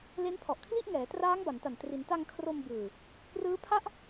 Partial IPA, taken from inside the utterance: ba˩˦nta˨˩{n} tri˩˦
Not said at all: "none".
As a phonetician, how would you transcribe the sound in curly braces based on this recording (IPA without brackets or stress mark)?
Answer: n